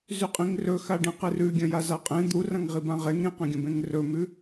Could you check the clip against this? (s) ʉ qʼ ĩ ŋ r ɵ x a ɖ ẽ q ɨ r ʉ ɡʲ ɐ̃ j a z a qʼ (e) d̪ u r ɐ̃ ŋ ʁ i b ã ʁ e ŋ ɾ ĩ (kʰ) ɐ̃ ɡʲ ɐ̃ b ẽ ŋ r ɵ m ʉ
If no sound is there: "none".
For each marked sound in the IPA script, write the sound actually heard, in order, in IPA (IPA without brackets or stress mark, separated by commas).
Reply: z, ẽ, q